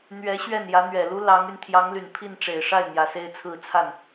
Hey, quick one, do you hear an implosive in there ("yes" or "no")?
no